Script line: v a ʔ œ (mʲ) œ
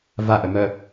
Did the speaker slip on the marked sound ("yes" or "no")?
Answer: yes